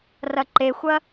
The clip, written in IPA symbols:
rɐǃexʷɐ

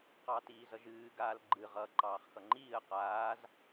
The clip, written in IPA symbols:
qɑtiːzʌʒɨː ɡaːlɡ͡ǃɨ ʁʌːǃɑːχxʌŋ͡ǃiːə̯ qaːz

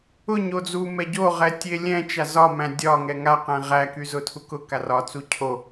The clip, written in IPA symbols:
ʊɲo d͡zu mɛɟoʁɛ tʲelʲɛ̃t͡ʃa zɒmæ̃ dʲɒŋɛ ŋaqɛ̃ ʁæky zʊtʰukʊka rɒt͡su cʰo

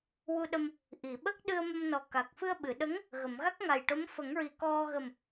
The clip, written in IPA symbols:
wu˧ɗə˧m | ʔi˨˩˨ɓə˦˥k̚ɗɨ˧ə̯ mə˧mnɔ˨˩ka˨˩k̚ fɨ˧ə̯ɓɨ˨˩˨ɗə˧˥ŋ | ɣə˨˩˨mɣa˦˥k̚ŋa˨˩jʈo˧˥m fə˨˩˦ŋɹi˨˩ kɔ˧ɣə˨˩m

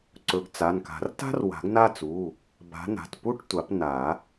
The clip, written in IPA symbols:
ǀɵ˨˩˦ɡt͡sa˩˧˩nka̤˨˩˦r ta̤˥r wa̤˨˩˦ɡna˥˧t͡su˩˧˩ | ba̤˨˦na̤˩˧˩tpu˥˧ʈ tʷa˨˩˦pna˨˩˦

